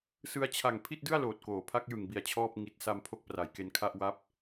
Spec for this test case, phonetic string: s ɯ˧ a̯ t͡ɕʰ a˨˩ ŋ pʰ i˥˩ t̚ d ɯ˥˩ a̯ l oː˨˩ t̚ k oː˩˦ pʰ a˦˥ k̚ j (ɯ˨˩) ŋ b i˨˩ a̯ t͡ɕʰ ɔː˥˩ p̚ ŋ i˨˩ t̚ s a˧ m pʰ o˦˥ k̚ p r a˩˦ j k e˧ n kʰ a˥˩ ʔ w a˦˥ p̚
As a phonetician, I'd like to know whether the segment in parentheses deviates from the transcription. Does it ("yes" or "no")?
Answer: no